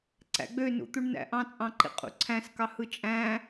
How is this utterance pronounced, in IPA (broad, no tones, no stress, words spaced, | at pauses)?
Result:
ǀæ̰ɡ͡bønṵt̪uɳ næ̰ʔɑ̃t͡sʼɑ̃ǃḭ qʼṵǀʰæ̃skɑ hɯt͡ʃʼæ̃